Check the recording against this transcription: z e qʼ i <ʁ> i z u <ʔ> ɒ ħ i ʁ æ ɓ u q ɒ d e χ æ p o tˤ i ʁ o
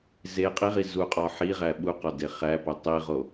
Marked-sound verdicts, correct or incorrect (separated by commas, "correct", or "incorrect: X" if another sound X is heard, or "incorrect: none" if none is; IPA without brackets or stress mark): correct, incorrect: qʼ